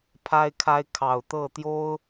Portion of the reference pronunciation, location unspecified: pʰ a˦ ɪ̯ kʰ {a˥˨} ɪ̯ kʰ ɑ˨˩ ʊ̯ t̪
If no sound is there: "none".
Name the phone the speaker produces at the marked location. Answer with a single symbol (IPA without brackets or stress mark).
a˦